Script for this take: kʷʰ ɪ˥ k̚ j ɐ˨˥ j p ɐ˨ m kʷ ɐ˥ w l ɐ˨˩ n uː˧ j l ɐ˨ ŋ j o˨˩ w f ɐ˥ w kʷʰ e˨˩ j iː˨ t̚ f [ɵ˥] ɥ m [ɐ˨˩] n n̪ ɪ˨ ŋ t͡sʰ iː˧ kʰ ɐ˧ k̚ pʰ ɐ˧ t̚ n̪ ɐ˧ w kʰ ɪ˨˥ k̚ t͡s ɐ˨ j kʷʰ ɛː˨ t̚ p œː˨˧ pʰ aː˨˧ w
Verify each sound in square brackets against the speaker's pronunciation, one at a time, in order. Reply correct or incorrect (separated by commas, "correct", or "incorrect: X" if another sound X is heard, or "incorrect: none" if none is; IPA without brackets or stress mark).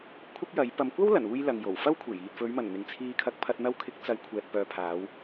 incorrect: ɵ˨˧, correct